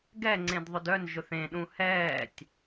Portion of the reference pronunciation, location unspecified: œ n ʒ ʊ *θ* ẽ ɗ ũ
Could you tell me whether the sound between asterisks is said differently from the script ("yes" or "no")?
no